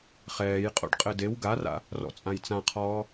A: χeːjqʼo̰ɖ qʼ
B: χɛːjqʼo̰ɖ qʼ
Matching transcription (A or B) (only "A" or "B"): B